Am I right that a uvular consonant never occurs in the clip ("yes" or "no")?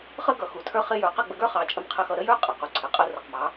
no